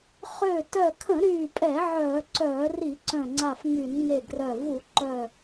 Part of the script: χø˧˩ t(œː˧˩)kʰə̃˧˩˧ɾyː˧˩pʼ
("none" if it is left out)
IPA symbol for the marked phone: œ˧˩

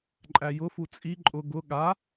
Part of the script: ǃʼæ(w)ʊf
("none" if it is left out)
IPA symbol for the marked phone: j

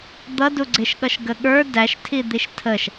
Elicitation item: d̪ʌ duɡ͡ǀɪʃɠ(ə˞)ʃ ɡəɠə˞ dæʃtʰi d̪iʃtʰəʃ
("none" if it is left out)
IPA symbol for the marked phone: ʌ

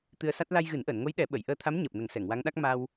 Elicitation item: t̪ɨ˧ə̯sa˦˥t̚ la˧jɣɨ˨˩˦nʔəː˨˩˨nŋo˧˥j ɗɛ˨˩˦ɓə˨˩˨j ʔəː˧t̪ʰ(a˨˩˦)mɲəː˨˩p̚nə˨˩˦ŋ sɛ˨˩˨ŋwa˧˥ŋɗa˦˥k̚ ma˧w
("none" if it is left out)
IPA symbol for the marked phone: a˧˥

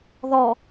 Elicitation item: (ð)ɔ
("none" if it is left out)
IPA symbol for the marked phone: ð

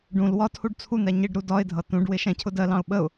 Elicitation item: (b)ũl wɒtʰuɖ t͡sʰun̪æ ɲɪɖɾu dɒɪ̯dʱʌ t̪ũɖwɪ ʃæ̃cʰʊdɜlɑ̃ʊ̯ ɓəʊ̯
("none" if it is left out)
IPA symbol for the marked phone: ɖ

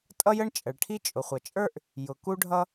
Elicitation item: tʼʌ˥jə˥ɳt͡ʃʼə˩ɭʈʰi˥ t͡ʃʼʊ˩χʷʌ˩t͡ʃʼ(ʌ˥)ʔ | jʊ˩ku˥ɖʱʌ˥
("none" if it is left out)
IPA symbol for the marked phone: ə˞˥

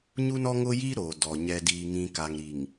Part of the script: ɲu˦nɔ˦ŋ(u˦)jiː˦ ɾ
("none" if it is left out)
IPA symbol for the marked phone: ʊ˦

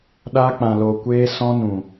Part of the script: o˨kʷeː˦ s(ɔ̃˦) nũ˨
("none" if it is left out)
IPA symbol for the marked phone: ɔ̃˦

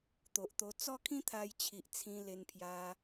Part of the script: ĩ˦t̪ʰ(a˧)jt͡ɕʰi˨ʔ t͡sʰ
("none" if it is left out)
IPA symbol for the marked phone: a˧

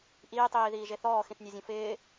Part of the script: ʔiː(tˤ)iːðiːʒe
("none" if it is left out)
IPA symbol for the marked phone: tˤ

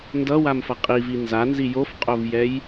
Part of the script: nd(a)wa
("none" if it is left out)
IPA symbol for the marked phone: ʌ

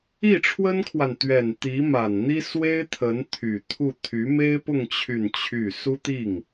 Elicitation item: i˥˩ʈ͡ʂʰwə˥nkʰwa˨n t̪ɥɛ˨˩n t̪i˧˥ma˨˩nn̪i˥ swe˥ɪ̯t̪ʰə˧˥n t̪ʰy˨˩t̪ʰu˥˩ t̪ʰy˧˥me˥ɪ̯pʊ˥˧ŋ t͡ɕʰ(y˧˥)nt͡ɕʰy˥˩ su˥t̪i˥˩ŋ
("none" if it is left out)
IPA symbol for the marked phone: y˥˧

